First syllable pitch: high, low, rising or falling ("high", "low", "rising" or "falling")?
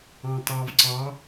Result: low